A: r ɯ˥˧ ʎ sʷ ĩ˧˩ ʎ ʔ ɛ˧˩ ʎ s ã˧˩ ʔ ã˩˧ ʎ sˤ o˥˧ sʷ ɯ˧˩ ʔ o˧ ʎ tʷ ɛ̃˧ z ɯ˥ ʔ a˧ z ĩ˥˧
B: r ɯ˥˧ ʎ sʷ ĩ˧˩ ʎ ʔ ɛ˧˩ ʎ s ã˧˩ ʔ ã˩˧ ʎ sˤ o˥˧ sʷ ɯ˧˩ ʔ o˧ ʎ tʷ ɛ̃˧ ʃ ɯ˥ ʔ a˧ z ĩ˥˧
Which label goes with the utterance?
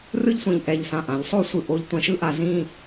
B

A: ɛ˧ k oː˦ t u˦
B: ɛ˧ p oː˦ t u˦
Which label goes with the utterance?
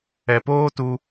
B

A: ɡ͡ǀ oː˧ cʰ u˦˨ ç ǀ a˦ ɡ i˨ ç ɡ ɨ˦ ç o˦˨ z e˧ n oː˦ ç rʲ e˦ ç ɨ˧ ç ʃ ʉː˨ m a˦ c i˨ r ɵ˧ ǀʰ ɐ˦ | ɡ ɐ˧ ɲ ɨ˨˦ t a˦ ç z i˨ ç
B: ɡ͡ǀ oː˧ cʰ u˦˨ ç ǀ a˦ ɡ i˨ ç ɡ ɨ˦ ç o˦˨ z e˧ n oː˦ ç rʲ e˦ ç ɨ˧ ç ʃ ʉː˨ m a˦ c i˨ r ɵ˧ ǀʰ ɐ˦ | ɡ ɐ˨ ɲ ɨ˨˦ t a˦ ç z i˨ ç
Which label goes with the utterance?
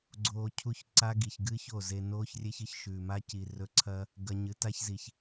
A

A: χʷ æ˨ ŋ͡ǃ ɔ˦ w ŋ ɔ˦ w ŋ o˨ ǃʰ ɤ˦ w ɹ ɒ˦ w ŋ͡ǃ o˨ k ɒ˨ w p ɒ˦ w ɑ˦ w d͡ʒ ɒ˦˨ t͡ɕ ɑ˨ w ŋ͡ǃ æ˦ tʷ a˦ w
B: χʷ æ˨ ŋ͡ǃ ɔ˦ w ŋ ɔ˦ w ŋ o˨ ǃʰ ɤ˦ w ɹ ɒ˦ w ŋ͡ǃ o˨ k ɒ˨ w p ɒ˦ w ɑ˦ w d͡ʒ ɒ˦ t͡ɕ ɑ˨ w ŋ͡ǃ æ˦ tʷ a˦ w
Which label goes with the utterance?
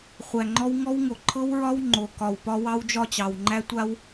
A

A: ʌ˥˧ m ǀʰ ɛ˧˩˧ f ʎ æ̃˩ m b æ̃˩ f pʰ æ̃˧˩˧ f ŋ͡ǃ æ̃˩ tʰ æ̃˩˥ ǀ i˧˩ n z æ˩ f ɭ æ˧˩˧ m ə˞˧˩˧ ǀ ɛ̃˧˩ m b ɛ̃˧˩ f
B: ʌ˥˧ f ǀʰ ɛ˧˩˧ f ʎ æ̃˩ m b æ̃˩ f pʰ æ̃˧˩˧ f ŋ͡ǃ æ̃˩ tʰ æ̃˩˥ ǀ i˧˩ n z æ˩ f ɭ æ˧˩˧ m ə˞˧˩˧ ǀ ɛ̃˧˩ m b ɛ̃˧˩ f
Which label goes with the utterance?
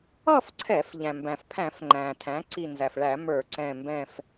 B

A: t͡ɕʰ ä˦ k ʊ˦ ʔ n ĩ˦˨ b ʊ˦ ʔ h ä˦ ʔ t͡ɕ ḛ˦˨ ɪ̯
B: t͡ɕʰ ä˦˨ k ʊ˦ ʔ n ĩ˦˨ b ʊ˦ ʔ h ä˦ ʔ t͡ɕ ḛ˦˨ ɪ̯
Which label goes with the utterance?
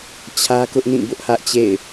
A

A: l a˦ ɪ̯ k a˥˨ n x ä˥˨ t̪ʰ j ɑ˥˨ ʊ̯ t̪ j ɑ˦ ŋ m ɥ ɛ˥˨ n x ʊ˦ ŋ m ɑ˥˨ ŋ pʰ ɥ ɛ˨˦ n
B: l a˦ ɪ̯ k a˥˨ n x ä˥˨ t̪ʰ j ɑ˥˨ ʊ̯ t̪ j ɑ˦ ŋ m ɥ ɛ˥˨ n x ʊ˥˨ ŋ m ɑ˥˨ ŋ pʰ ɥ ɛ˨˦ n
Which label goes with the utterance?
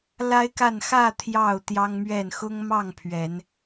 A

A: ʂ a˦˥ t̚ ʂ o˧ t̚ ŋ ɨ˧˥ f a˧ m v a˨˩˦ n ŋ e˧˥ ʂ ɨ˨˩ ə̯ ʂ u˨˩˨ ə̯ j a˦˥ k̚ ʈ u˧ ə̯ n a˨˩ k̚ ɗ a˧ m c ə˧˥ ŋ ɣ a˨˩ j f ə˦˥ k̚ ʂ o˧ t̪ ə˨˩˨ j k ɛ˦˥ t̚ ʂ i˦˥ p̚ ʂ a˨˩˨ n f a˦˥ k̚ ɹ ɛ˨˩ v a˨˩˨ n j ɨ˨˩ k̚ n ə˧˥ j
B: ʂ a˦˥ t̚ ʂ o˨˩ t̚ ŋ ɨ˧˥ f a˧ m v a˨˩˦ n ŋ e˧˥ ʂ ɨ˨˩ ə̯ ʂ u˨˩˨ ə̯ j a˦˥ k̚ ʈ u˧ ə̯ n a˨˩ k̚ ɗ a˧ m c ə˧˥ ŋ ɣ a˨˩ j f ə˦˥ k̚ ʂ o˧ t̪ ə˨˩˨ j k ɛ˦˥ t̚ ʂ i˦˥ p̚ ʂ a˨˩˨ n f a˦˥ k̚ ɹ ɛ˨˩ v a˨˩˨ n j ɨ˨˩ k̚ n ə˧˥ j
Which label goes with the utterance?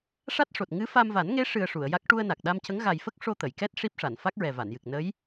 B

